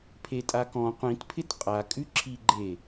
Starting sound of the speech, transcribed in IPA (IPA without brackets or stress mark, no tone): pʰ